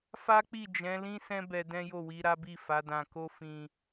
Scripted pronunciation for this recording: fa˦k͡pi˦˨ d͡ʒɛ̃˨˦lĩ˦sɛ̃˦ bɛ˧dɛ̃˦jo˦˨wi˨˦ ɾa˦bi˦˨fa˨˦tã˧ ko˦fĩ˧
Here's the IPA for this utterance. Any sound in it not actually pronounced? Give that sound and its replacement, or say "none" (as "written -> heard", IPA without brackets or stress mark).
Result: t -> d